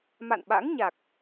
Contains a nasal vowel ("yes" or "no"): no